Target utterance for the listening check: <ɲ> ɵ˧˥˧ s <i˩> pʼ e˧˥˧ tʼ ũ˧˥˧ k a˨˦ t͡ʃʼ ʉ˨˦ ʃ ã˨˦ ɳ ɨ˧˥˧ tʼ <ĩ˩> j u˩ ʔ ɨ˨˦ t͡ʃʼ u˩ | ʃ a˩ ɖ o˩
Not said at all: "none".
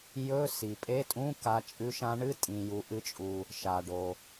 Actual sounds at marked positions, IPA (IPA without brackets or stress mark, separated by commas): j, i˩, ĩ˩